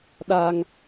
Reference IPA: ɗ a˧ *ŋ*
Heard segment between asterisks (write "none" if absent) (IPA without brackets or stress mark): ŋ